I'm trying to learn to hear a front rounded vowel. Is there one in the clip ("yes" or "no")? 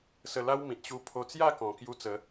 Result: no